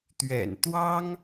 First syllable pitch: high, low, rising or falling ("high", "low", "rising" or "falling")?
low